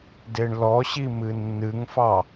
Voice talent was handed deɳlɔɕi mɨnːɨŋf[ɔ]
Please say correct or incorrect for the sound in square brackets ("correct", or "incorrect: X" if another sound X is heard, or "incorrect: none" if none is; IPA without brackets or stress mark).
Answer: incorrect: ɑ